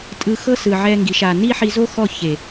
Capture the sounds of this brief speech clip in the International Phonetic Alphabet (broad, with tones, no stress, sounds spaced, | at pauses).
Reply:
tʼ ɯ˧ x ɤ˦ s ɯ˨ ʕ ɛ˦ ŋ ɡ i˨˦ ʃ a˨ n i˦ ħ i˧ z o˦ x ɔ˦˨ ç e˨